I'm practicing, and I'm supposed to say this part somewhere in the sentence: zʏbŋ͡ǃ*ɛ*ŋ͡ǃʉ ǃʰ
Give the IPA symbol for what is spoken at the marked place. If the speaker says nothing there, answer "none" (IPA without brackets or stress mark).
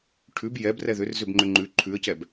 ʏ